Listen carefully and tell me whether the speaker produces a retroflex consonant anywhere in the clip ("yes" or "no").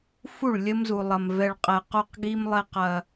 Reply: yes